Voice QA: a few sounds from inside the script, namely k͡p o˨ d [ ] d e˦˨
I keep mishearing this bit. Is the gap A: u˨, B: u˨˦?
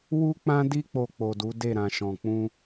B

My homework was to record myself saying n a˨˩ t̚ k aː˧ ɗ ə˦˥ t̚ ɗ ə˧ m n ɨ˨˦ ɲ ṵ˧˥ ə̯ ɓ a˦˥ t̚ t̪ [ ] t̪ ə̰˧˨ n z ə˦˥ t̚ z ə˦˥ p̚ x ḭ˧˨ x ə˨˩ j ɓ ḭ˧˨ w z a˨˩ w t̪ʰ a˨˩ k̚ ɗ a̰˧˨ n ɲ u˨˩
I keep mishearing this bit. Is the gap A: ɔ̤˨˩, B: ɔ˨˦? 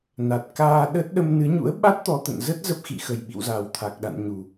B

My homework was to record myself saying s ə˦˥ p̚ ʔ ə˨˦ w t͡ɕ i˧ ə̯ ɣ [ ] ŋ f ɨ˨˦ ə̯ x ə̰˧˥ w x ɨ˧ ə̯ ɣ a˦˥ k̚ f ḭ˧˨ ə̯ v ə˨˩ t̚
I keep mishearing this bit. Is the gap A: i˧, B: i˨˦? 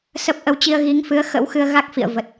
B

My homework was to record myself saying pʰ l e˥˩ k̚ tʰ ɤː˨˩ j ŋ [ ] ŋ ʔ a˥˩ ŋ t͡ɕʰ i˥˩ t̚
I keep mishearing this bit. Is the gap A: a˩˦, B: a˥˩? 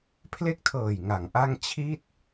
A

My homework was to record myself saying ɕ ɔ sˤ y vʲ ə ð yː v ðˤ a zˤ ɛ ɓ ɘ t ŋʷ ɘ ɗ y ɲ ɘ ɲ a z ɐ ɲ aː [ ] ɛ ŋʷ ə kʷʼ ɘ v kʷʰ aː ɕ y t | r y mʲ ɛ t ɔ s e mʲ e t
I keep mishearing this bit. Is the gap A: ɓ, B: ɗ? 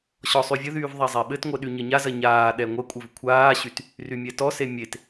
B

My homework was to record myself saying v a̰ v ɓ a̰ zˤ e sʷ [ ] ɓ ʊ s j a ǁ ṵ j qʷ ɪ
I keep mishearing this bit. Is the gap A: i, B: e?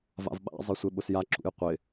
B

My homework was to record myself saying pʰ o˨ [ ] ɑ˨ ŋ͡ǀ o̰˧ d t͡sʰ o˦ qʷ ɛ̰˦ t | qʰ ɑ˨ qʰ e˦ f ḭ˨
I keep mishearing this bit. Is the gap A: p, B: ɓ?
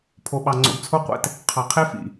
B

